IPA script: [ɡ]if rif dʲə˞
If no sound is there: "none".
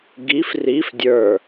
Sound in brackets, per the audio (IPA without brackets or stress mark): ɡ